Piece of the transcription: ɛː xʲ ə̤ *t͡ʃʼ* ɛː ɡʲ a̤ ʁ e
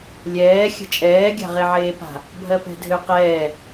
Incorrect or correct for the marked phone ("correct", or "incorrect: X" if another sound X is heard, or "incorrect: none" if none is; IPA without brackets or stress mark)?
correct